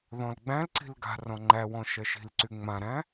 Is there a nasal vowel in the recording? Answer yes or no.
yes